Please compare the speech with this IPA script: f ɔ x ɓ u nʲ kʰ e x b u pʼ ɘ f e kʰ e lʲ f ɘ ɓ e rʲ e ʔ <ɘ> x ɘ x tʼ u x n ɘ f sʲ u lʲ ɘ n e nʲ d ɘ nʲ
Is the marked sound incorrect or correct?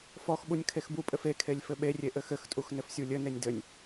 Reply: correct